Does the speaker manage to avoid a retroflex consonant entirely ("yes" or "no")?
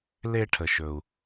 no